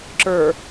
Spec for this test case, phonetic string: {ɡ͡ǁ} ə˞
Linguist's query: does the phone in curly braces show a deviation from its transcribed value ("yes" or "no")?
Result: yes